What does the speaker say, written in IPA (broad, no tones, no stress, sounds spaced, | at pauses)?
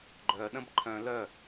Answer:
ɡ͡ǃ œ ɗ ə̃ b ǃʰ œ̃ l œ